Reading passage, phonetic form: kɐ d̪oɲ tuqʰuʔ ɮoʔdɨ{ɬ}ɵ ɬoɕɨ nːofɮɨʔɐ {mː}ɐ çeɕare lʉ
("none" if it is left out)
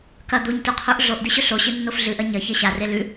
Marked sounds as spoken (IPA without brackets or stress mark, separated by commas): ɕ, ɲ